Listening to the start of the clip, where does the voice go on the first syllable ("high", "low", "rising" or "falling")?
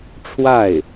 falling